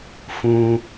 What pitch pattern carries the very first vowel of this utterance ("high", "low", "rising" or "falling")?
high